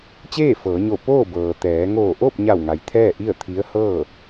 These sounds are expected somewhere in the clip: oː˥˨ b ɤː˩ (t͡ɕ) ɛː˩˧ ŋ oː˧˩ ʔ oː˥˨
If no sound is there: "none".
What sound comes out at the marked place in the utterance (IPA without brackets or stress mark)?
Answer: t̪